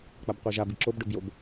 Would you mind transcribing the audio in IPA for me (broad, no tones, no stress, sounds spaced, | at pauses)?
k͡p a b qʷ e ʒ a b i ǁ o b ɖ ʊ b j o b